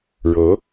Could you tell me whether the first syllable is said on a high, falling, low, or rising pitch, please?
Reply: rising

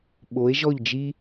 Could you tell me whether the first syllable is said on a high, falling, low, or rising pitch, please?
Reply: rising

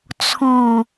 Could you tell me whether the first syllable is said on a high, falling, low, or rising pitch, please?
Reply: low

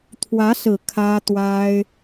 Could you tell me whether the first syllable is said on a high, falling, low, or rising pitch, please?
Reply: rising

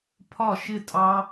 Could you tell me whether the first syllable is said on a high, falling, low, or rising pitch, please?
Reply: falling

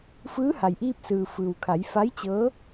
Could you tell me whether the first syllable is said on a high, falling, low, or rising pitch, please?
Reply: rising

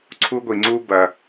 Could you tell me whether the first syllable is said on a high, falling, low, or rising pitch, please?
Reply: high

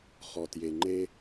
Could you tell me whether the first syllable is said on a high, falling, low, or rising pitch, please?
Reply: low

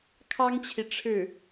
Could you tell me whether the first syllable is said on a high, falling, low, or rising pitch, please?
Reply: high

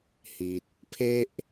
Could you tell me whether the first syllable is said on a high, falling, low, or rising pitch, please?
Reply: low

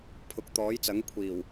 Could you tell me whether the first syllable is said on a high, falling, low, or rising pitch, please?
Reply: rising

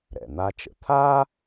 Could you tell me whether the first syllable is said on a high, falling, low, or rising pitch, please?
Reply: low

